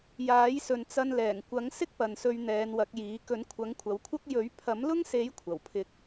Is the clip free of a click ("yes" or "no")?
yes